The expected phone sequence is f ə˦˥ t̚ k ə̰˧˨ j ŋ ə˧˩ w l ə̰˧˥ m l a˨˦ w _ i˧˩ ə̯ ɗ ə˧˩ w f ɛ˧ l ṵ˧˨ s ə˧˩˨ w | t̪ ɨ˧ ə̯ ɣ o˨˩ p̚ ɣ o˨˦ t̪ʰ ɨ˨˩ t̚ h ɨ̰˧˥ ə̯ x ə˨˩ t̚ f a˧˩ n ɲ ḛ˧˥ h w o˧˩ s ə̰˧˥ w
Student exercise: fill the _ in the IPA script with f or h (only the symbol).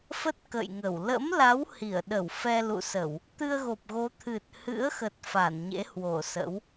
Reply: h